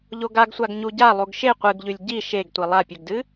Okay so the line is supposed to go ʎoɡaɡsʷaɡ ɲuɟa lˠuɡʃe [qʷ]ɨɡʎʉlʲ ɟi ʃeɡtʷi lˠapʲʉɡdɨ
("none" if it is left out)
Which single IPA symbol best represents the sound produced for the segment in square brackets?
qʷ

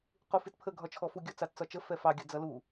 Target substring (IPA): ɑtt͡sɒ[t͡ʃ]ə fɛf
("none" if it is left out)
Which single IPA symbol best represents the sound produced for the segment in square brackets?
t͡ʃ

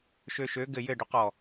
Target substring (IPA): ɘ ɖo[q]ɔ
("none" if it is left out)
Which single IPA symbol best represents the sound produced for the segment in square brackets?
q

